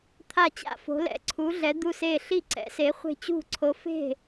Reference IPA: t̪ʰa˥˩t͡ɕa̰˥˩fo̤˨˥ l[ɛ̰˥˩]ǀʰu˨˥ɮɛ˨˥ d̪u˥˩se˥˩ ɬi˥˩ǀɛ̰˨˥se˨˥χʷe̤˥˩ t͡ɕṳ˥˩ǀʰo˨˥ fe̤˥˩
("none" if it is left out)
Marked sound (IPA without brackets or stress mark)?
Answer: ɛ̰˨˥